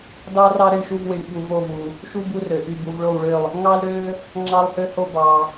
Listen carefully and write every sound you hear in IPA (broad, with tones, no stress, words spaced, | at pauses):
dɑ˦rɑ˦ ɾe˦˨ɳʃu˦˨vwi˨ɳ ɓu˨vo˦˨vu˨ | ʃu˦ bu˦rø˨ʔy˦˨ bu˨vɭo˦˨wɭø˦˨lˠ | ŋɑ˦lɾø˦ | ŋ͡ǁɑ˦lˠhø˦ho˦ bɑ˨